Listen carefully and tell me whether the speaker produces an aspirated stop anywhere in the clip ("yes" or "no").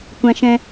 no